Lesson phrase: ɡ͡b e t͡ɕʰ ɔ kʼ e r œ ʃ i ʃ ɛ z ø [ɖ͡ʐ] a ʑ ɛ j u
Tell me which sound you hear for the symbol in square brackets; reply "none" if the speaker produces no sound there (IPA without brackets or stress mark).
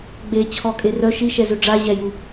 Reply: ɖ͡ʐ